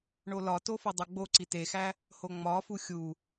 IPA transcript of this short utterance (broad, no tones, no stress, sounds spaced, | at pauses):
ɳ o l ɒ t o f o dˤ o ɡ͡b o ǀ i t e x æ | h o ŋ͡m ɒ f u xʲ u